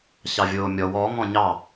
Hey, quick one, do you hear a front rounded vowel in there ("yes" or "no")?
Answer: no